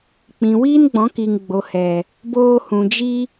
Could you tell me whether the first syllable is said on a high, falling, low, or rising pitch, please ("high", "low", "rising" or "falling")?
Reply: low